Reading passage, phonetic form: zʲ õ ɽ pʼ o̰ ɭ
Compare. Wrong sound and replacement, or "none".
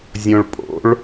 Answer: ɽ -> ɭ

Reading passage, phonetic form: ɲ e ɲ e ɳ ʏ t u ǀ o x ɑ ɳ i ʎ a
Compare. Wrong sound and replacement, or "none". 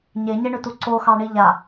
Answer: none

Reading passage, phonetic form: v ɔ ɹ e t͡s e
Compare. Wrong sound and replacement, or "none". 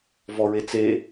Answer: none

